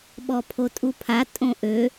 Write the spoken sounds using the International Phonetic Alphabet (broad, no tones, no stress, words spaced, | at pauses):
ɓɔpʰotʼupʰa tʼõʔø